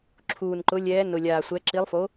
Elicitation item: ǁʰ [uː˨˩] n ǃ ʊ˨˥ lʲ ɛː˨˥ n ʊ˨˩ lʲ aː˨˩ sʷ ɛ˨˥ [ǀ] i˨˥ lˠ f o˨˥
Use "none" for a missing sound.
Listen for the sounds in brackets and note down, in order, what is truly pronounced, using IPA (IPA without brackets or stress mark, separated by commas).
uː˨˩, ǁ